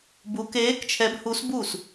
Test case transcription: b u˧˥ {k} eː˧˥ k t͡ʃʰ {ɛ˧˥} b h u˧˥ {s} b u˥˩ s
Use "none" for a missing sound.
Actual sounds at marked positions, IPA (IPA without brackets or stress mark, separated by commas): k, ɛ˧˥, s